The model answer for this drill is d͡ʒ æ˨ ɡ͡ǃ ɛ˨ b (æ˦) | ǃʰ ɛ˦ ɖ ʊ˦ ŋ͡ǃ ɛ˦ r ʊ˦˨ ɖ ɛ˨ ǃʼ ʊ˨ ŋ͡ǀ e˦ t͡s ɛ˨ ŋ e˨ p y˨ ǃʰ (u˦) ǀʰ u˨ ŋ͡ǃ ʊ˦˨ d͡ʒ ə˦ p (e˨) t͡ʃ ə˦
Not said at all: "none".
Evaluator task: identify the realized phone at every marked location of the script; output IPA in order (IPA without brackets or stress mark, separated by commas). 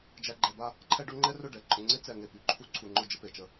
a˦, u˦, e˨